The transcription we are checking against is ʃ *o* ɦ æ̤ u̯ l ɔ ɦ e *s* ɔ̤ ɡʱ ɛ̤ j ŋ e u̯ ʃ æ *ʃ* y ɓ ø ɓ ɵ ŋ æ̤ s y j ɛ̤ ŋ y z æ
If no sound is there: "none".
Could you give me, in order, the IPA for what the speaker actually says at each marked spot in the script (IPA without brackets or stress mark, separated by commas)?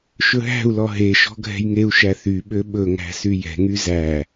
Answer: ɵ, ʃ, θ